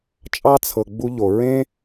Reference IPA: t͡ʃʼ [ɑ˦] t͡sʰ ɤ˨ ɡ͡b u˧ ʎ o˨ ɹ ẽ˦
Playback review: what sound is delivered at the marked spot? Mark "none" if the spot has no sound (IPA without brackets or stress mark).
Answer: ɑ˦